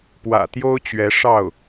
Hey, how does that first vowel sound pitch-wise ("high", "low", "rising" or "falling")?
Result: low